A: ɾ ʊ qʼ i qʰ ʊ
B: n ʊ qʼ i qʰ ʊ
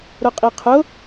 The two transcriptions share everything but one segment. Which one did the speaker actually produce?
A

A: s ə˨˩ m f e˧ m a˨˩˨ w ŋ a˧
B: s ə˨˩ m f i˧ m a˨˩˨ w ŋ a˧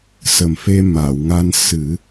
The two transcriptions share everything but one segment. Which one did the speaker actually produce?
A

